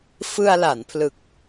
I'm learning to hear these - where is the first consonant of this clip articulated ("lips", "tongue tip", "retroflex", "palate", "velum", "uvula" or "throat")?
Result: lips